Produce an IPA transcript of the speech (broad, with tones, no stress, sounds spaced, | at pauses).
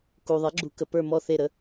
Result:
k u˩ ðˤ ɛ˩˥ ɡ͡ǁ u˨˩˦ k ə˩ p ə˞˦˨ m ɔ˦˨ θ e˦˨ ɾ ə˩˧˩